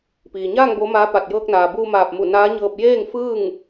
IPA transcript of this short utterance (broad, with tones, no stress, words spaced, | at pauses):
piː˩ɲaː˥˨ŋ bo˧˥maː˧˥ pa˧˩t̚ jɤː˧k̚naː˩buː˧maː˧˩p̚ mu˧˩naː˧˥ɲɤː˧p̚ jeː˥˨ŋfɯː˥˨ŋ